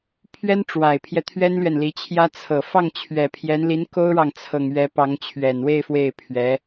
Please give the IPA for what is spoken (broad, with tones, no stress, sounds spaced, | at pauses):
pʰ ɥ ɛ˥ n ʈ͡ʂ w a˨˩ ɪ̯ pʰ j ɛ˦ t̪ʰ ɥ ɛ˥ n l ɥ ɛ˨ n l i˧˥ t͡ɕʰ j ä˥ t͡sʰ ɤ˨˩ f ɑ˥˩ ŋ t͡ɕʰ ɥ ɛ˨˩ pʰ j ɛ˧˥ n l i˧˥ n k o˥ ʊ̯ ɻ ɑ˨ ŋ t͡sʰ ɤ˨˩ ŋ ɥ ɛ˧˥ p ɑ˧˥ ŋ t͡ɕʰ ɥ ɛ˨˩ n w e˥˧ ɪ̯ f w e˥˩ ɪ̯ pʰ ɥ ɛ˧˥